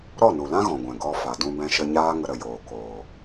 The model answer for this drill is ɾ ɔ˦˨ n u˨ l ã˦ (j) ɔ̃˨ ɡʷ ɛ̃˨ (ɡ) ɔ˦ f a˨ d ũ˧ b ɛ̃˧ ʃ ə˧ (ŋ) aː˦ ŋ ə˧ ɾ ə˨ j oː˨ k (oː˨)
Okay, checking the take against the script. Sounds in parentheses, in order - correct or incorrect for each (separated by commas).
incorrect, correct, incorrect, correct